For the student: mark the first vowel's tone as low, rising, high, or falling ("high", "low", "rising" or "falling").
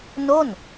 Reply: falling